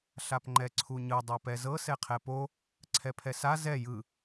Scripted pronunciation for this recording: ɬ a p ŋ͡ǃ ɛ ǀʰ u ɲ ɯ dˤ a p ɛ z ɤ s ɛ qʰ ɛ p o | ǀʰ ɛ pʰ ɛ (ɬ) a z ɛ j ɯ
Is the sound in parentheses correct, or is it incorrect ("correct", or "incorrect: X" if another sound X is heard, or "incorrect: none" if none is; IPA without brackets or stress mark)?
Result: incorrect: s